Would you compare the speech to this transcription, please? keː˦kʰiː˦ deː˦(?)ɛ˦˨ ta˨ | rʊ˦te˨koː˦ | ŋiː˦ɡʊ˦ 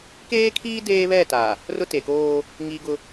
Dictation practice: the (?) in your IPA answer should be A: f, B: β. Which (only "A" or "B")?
B